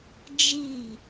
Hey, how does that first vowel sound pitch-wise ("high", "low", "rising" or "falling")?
falling